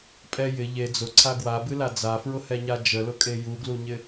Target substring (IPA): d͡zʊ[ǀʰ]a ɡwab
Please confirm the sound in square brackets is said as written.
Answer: yes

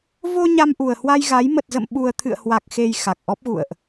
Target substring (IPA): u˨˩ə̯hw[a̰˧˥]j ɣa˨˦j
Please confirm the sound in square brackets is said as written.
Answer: no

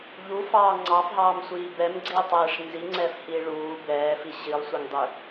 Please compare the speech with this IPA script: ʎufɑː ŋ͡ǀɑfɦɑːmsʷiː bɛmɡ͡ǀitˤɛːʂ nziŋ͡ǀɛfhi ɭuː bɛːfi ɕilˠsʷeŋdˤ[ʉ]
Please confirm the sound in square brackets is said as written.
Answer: yes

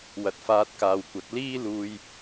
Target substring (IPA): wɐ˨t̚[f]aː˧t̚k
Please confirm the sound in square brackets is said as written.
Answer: yes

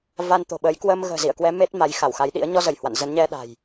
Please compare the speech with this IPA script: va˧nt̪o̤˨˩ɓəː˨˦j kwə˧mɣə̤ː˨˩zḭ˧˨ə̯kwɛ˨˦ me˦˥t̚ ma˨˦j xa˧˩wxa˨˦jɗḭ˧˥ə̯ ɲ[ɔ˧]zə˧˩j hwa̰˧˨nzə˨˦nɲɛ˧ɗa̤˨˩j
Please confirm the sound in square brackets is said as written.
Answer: yes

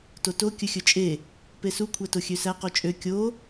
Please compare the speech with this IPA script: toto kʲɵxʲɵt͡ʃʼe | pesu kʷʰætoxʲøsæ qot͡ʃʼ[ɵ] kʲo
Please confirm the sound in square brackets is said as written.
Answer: no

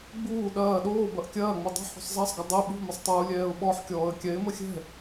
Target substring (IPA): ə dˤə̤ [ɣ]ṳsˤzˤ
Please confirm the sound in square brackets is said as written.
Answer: no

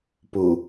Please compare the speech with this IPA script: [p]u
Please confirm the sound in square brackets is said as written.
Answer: yes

